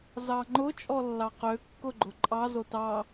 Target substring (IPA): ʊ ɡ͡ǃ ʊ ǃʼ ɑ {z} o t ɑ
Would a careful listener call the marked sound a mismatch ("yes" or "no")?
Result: no